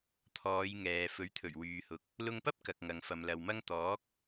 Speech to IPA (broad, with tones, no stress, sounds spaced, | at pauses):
t̪ʰ ɔː˨˧ j ŋ ɛː˨ f ɵ˨˥ ɥ t̪ʰ ɵ˨˩ ɥ w yː˨ h ʊ˨ k̚ | l ʊ˧ ŋ p ɐ˥ p̚ k ɐ˨ k̚ ŋ ɐ˨ ŋ f ɐ˨ m l ɐ˨ w m ɐ˥ ŋ t̪ ɔː˨˥ k̚